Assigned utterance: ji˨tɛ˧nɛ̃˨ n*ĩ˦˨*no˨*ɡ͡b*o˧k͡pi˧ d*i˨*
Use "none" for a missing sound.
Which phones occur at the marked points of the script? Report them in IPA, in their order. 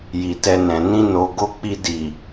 ĩ˧, ɡ, i˨

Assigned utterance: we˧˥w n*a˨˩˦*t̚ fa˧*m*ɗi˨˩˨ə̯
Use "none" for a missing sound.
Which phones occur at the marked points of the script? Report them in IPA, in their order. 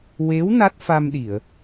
a˦˥, m

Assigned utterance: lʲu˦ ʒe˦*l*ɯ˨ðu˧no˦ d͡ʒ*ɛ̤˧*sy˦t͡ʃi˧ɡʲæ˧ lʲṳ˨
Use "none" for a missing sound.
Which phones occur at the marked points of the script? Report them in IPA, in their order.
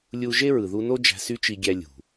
ɹ, æ̤˧

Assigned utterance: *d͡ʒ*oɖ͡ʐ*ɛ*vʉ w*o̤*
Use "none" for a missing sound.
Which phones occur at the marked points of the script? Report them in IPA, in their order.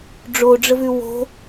ɖ͡ʐ, ə, o̤

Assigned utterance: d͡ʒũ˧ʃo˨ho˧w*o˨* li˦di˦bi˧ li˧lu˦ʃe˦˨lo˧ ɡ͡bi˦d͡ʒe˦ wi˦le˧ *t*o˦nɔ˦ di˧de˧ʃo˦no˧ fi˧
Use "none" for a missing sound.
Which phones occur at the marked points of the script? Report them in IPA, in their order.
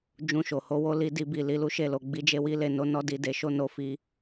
o˦, n

